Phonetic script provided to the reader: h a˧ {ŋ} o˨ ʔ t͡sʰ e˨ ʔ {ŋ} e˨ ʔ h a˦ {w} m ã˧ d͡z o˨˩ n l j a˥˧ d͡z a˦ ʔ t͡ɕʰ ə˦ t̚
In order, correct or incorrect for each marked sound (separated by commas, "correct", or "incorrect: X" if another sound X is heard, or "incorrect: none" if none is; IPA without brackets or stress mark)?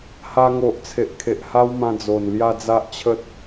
correct, incorrect: kʰ, correct